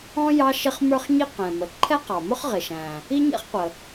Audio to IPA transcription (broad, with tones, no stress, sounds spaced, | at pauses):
ɔ̃˥ j ɑ˥ ʃ ɪ˥ χ m ə˞˥ χ ɲ i˥ q ɛ̃˩ m ə˩ ǃʰ ɛ˥ q ɑ˩ m ʊ˥ χ ʁ ɪ˩ ʃ æ̃˩ | i˥ ɲ ɛ̰˥ χ qʷ ə˩